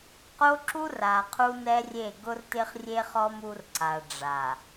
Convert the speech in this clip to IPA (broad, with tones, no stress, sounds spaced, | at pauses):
q o˦ ǁ u˦ r a˨ qʰ u˦ n ɛ˦ rʲ e˦˨ ɡ ʊ˦ r t ɪ˦ χ rʲ e˦ χ ɔ˦ m u˦ r ǀ a˨ ɖ͡ʐ a˨